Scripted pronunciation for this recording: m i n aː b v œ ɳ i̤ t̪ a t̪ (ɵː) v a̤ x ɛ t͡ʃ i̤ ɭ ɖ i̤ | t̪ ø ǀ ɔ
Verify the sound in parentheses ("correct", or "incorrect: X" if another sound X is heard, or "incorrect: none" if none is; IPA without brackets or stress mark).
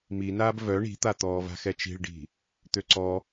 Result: incorrect: ɔː